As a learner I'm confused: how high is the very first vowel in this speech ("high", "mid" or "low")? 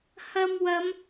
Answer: low